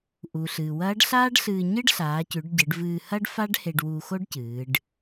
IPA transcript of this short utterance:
ʔ u˩ ɬ ɨː˩ w ɐː˧˥ ɖ ɬ aː˥ ɖ ɬ ɨː˧ ɲ ɨ˥ ɖ ɬ aː˩˧ c ʉ˩˧ ɖ ɟ ɨ˩˧ ɖ v ɨː˧ h ɐ˥ ɖ f a˥ ɖ h e˧ ɖ w u˧ x o˥ ɖ c ɨː˩˧ ɖ

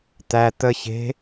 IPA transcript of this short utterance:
t̪ æ t̪ ə ç e̤

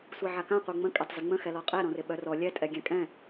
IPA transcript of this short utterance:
sʷ ɛ ʕ a k ã qʷ œ ŋ͡m ə̃ kʼ ɛ tˤ z ɪ ŋ͡m ə̃ x ɛ l ɔ qʼ ɛ ɾ ɔ̃ r ɪ ɓ œ r ɔ lʲ ɛ tʼ ɛ ɡʲ ɛ̃ kʼ ɛ̃

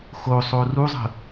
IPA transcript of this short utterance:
x o sˤ o r u zˤ ə̤

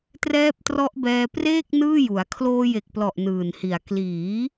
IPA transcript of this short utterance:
t r ɛː˦˥ p̚ t r ɔ˦˥ ʔ b ɛː˧ p r eː˥˩ k̚ n ɯː˥˩ j u˩˦ a̯ kʰ l oː˧ j e˨˩ k̚ p l ɔ˨˩ ʔ n ɯː˨˩ n h i˨˩ a̯ k l iː˩˦

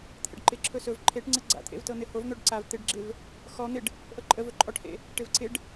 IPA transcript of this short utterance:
t̪ʰ ḛ ɖ ǃ ɪ ǁʰ ɵ s ɵ v ǃʰ e ʈ ŋ͡ǀ ə ɡ͡ǀ a̰ t̪ʰ ḛ v t ɤ n̪ ɪ h o v n̪ o ɖ ǀ a v t̪ ɪ ɖ ɡ͡ǁ ɪ v | x ɔ n̪ ɪ ɖ | ʔ ɤ ǃʼ ə v ɵ ǃʼ ɔ ʈ h ḛ | ʈ ɪ v ǀ ɪ ɖ

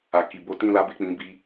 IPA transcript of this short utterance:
a˨ k i˨ b o˧ t ĩ˦ l a˦ b e˦˨ k͡p ĩ˧ b i˧

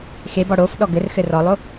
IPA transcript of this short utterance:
x e b ɔ ɽ o f ɗ ɔ ɡ ɘ r x ɘ r ɔ lˠ o

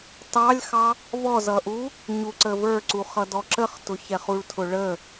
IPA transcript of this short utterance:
t ɑ lʲ x ɑ | v ɔ z ʌ ʔ u | ɲ u ǀ ə v ə˞ ǀ u χ ʌ d ɔ ǁ ə χ t ʊ ç ɛ χ u ɭ tʰ ʊ ɭ ə

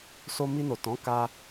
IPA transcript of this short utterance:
s o˧ m i˧ n o˨ t ɔ̃˨˦ k a˧

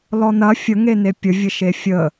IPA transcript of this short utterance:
l ɔ n ɐ fʲ ə ŋ e n e pʲ ə vʲ ə ʃ e fʲ ə

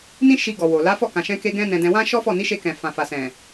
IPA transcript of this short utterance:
n ĩ˦ ʃ i˧ ɡ ɔ˨ w o˨ l a˨˦ f ɔ˦˨ k ã˨ ʃ ɛ̃˧ k e˦ ɡ ɛ̃˦ n ɛ̃˧ d ɛ̃˧ w ã˦ ʃ ɔ˦ f ɔ˦˨ n i˨˦ ʃ e˧ k ɛ̃˨ f ã˨ f a˨ s ɛ̃˨

